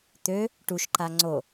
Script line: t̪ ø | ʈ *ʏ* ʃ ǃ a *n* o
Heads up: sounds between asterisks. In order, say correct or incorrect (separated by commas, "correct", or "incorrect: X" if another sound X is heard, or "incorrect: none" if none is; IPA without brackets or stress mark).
incorrect: u, incorrect: ŋ͡ǀ